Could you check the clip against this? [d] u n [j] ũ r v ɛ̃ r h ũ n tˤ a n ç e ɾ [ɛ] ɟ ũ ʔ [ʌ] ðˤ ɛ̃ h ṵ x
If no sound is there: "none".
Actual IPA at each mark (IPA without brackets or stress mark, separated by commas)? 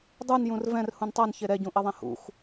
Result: dˤ, j, ɛ, ʌ